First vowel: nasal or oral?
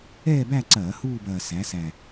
oral